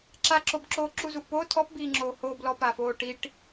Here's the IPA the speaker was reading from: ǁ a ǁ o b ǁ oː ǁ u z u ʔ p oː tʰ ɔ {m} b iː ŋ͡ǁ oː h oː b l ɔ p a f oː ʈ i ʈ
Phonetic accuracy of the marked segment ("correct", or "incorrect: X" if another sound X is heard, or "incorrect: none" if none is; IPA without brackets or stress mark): incorrect: p